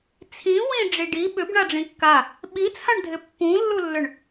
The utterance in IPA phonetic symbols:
t͡sʰ ĩ w ĩ ɖ͡ʐ i ɖ i ɓ ʏ b ɳ a ɖ͡ʐ ĩ kː a | ɓ i t͡sʰ ã ɳ dʱ ɪ pː ũ lː u lː ʏ ɳ

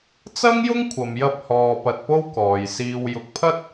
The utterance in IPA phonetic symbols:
t͡s ɐ˥ ŋ j ʊ˥ ŋ kʷʰ ɐ˨ m j ɐ˧ p̚ h ɔː˧ p ɐ˧ t̚ p o˥ w k ɔː˨ j s iː˧ w j ʊ˨˥ k̚ pʰ ɐ˥ t̚

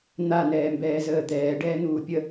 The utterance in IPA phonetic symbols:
n̪ a n ɛː m b ɛː z əː d̪ ɛː ɖ ɛː n̪ uː pʲ ə

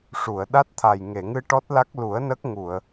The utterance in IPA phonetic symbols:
ʂ u˨˩˨ ə̯ ɗ a˦˥ t̚ t̪ʰ a˨˩ j ŋ e˨˩˨ ŋ ɨ˧ ʈ ɔ˦˥ t̚ l a˦˥ k̚ l u˨˩˦ ə̯ n ə˦˥ k̚ ŋ u˨˩˨ ə̯

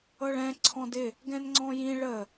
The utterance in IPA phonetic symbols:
ɤ ɭ ɛ̃ ǀʰ ɔ̃ d ɪ | ɡ ɛ̃ n ŋ͡ǀ ɔ̃ j ĩ ɭ ə

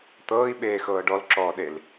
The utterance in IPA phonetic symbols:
t̪ ɤː i̯ ɓ eː x ɤː ɖ ɔ l ǁ ɔː ɗ e l

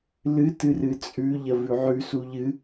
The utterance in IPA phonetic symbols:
l ɨ t ɨ r ɨ t͡sʼ ʉ ʎ ɐ v ʉ ʕ ʉ s u ʎ ɨ

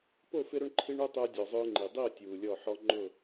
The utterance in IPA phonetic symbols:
p o˦˨ f ɪ˦ ɾ ʊ˦ ɳ ǃʰ i˦ ɳ u˦ tˤ ʊ˦ ə̯ dʲ ɔ˨ zˤ ʊː˦ ŋ͡ǃ i˨ dˤ i˦˨ ə̯ tʲ uː˨ lʲ ɔ˦˨ ħ ɔ˦ ŋ͡ǃ ʊ˦˨

